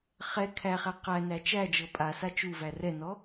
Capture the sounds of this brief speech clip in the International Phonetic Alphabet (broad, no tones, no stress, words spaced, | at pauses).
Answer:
χɛ kʰæχæ qænæ t͡ʃæd͡ʒɤ pʼasa t͡ʃuvæ rɛnɔ